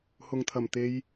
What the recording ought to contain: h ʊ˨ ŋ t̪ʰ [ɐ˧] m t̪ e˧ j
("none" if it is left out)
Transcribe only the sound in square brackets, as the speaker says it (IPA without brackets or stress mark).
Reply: ɐ˨˩